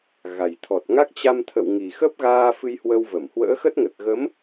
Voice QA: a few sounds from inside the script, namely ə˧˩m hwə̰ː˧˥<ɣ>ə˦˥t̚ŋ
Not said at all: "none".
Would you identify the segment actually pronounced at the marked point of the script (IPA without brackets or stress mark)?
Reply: x